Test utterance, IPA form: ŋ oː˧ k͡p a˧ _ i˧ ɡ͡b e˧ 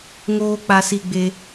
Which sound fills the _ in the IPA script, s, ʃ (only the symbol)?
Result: s